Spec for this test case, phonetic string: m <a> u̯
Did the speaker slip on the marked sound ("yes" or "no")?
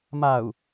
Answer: no